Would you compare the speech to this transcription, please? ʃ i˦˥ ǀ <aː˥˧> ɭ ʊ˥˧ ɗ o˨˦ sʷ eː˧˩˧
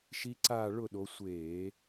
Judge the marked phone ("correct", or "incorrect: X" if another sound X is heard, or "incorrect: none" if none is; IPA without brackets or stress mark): correct